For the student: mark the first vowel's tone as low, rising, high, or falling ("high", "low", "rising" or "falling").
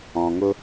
low